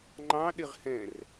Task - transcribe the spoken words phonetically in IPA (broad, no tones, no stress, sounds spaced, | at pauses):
ŋ͡ǃ ɑ̃ ɗ ɪ ʁ h ɛ̃ r